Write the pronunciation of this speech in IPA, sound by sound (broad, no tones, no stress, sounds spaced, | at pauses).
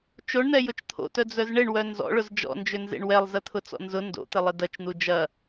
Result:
t͡ʃ o ɳ n̪ ɛ j ʊ t͡ʃ t̪ʰ o̰ t œ d͡z œ z ɳ ɪ ɳ w œ n z ɔ̰ ɭ ʊ z d͡ʒ ɔ̰ n d͡ʒ ʏ n z ḛ ɳ w ɛ lˠ z ɐ t̪ʰ ʊ t͡s ɔ̰ n z ʊ n d o̰ t̪ ɪ lˠ ɪ d ɐ t͡ʃ n̪ u d͡ʒ ɐ